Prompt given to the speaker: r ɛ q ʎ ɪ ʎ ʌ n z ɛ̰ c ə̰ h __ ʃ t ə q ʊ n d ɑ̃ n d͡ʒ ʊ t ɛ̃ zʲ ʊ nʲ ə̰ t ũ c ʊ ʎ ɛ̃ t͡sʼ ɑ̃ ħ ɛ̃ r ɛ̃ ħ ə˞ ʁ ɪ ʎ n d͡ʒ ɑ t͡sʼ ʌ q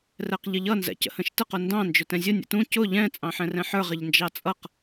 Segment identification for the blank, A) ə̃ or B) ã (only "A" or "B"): A